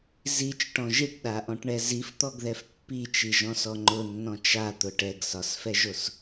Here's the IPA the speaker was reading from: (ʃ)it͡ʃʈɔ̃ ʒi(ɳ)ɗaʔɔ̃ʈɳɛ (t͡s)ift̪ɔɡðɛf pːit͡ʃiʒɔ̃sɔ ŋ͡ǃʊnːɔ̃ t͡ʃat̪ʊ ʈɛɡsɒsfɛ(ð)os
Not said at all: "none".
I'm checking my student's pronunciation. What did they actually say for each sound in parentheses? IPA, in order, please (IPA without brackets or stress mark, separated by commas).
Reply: z, ʈ, z, ʒ